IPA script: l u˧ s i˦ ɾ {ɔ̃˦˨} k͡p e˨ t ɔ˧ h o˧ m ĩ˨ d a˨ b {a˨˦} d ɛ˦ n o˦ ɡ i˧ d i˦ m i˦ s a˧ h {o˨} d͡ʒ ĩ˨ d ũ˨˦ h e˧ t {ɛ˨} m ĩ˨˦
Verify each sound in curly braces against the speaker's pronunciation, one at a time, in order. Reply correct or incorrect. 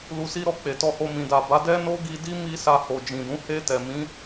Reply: incorrect: ɔ˦˨, correct, correct, correct

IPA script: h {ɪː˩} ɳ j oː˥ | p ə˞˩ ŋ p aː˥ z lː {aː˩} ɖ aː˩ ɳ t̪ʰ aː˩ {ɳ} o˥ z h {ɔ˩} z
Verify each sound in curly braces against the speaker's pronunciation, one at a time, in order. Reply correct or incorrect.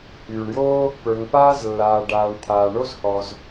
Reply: incorrect: yː˩, correct, correct, correct

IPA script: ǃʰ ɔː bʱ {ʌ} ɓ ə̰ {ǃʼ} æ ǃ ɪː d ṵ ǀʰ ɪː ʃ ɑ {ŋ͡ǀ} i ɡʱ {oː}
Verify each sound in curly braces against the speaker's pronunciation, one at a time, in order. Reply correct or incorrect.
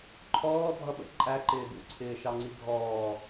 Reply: correct, correct, correct, incorrect: ɔː

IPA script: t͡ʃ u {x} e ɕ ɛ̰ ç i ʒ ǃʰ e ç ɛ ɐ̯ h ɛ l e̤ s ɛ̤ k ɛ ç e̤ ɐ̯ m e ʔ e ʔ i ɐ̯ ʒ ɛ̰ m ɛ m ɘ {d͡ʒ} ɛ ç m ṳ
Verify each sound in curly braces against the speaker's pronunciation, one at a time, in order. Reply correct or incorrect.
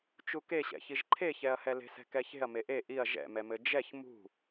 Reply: incorrect: k, correct

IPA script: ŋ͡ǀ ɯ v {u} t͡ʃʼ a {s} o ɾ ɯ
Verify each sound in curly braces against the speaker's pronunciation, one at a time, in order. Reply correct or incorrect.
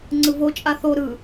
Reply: incorrect: o, incorrect: θ

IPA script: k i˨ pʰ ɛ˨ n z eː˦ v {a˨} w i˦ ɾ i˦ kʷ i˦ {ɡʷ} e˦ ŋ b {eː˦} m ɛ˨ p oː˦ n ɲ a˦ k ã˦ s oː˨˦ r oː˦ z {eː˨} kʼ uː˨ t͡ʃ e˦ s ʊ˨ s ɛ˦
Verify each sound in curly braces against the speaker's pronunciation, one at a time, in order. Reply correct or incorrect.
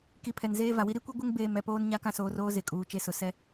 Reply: correct, correct, incorrect: eː˨, incorrect: e˨

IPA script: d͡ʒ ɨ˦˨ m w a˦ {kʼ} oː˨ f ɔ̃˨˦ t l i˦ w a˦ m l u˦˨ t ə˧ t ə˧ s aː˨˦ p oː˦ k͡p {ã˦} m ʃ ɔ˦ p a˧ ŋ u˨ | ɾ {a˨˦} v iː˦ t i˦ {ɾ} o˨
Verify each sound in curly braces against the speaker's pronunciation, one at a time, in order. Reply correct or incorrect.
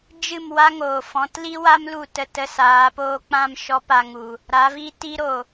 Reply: incorrect: ŋ, correct, correct, correct

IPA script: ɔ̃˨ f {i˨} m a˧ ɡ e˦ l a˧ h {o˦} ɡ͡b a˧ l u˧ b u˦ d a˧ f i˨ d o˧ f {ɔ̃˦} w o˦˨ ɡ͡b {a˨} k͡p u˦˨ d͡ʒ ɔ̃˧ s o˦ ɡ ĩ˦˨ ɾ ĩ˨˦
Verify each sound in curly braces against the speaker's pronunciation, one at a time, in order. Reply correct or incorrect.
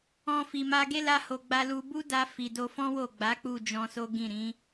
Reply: correct, incorrect: o˨, correct, incorrect: a˨˦

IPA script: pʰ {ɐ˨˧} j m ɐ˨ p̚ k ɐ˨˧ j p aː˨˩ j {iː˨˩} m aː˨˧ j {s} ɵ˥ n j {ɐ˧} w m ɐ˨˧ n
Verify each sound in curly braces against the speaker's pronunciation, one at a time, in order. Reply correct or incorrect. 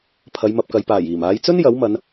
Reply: correct, correct, incorrect: t͡s, incorrect: ɐ˨˥

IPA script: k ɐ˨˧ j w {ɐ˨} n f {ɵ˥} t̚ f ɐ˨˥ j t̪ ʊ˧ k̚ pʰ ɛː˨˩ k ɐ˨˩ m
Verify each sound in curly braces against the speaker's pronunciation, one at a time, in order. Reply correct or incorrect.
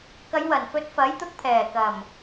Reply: incorrect: ɐ˨˩, incorrect: ɵ˨˥

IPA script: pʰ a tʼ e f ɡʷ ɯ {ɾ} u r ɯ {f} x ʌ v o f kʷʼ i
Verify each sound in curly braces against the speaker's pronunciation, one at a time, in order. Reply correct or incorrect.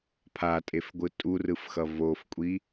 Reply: incorrect: tʼ, correct

